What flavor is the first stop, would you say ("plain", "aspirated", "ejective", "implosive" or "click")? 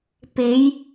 plain